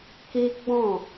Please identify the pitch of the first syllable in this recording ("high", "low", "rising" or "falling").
high